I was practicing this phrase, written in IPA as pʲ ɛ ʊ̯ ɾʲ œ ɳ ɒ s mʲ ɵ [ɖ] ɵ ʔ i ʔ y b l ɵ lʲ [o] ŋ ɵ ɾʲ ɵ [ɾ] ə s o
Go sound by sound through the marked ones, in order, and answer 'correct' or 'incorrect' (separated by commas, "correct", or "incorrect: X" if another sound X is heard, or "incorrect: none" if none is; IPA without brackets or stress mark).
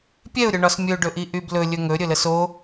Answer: correct, incorrect: ɵ, incorrect: l